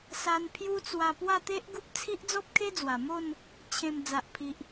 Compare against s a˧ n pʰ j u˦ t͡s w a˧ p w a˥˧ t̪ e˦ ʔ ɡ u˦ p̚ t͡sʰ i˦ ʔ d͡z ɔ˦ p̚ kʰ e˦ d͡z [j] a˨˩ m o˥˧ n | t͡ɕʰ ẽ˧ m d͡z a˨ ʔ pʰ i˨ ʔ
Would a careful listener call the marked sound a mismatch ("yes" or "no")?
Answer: yes